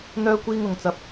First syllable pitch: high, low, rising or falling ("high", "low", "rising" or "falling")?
high